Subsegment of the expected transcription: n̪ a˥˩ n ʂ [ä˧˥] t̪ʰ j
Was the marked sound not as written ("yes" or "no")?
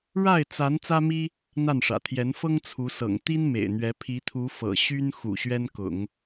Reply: yes